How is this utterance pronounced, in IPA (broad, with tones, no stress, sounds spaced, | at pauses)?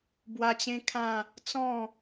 b w a˧ t͡ɕ ẽ˦ kʰ ã˥˧ | t͡s ɔ̃˥˧